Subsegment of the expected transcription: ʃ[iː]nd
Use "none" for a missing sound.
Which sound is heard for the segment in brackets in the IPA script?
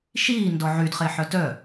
iː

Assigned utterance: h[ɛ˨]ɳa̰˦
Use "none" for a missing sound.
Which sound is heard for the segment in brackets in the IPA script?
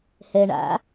ɛ˨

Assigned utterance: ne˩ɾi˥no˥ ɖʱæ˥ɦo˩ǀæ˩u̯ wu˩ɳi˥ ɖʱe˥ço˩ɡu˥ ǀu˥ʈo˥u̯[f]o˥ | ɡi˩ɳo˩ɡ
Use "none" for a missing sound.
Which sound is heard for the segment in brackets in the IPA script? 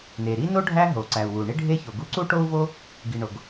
v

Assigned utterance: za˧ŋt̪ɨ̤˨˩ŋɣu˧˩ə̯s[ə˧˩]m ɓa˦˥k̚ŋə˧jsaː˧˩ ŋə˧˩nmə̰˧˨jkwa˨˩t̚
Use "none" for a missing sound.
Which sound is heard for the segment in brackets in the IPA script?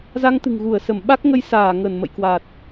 ə˧˩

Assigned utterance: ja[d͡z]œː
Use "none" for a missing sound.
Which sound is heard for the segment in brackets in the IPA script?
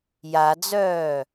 d͡z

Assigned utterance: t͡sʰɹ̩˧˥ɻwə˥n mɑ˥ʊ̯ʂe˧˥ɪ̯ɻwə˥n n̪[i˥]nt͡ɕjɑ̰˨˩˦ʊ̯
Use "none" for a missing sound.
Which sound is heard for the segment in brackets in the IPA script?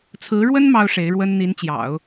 i˧˥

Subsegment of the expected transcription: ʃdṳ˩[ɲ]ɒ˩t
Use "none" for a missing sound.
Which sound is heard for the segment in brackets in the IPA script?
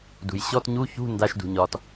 ɲ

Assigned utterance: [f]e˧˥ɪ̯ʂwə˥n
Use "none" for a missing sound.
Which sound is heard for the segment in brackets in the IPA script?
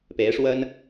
p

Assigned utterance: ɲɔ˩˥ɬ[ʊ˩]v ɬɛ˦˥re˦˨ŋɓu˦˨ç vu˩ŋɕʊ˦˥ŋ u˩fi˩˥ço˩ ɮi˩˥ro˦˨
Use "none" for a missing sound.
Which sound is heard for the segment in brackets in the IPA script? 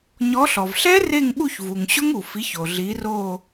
ɔ˩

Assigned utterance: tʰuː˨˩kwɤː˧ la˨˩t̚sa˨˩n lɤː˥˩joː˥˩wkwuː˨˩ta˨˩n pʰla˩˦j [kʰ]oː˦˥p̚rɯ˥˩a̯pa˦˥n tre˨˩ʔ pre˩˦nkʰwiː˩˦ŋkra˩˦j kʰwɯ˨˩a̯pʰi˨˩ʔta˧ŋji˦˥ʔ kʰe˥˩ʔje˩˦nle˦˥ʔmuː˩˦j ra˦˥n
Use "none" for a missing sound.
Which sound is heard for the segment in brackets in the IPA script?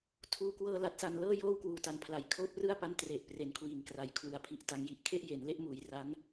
kʰ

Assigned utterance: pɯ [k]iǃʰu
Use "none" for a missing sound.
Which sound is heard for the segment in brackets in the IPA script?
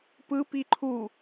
p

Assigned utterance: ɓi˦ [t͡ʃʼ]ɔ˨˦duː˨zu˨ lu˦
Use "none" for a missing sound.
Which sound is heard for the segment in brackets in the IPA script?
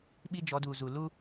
d͡ʒ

